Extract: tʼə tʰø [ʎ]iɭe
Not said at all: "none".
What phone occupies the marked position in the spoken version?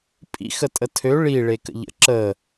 ɭ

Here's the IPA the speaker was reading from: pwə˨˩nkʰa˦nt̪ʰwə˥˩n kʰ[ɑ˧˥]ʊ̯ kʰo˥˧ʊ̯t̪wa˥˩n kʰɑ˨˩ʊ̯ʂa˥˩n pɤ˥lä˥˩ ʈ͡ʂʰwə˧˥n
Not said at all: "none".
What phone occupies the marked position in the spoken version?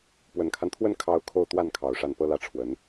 ɑ˧˥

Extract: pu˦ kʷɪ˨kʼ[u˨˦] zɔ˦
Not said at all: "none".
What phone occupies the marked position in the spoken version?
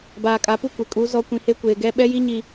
u˨˦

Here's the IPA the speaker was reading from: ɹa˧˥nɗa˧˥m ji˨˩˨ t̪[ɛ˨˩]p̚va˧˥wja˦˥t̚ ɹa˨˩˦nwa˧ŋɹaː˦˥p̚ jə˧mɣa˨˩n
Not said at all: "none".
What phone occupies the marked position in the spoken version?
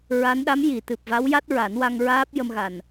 ɨ˨˩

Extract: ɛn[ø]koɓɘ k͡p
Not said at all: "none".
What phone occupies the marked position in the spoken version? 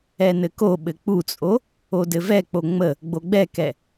ɘ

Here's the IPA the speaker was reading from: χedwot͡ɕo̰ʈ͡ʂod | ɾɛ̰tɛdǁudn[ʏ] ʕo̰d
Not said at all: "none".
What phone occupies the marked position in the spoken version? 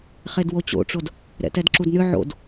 ʏ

